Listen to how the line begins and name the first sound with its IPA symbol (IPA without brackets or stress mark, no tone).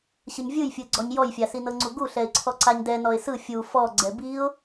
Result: ɕ